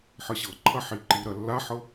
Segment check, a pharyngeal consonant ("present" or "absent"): present